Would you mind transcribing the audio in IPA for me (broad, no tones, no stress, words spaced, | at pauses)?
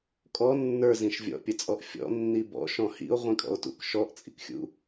kʼɔ nːə˞zĩʃ vʲɔ̰pʲət͡sʼɔʔ fʲɔ̰nːi bɔ̰ʃɔ̃ hḭo̯ʁʷĩkʼɔ̰o̯tṵk ʃɔʔt͡sʼḭkxʲṵ